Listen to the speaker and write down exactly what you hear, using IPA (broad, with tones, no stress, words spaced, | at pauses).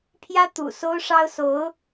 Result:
pʰjä˥ t̪ṵ˨˩ so˥ʊ̯ʂɑ˥ʊ̯so˧˥ʊ̯